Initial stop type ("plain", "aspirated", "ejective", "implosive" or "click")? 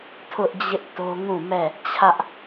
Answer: aspirated